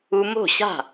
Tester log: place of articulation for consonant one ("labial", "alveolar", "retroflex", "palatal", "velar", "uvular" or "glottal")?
labial